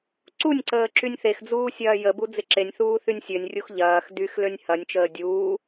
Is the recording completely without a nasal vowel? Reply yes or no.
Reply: yes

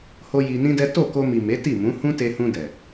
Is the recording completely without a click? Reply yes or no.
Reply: yes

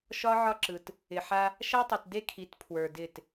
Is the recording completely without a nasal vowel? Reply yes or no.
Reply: yes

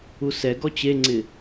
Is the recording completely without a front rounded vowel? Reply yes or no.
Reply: yes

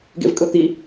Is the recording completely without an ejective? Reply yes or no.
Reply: no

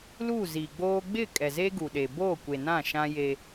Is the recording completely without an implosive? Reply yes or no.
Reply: no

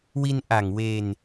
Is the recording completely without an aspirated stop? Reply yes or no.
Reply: yes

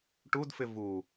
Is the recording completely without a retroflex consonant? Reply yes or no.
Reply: no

